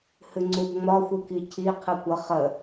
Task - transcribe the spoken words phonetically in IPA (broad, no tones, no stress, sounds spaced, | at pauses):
h ɨ ŋ͡ǀ u b ŋ͡m ɒ xʷ ɨ k i cʰ i qʰ ɯ kʷ ʌ χ ə